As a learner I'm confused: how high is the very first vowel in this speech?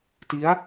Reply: high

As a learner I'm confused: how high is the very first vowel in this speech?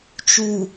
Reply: high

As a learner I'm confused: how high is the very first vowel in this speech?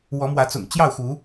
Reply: mid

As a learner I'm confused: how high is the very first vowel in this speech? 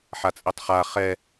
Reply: low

